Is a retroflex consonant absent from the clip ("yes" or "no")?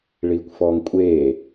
no